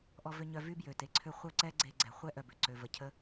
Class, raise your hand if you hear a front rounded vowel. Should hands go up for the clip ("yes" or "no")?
yes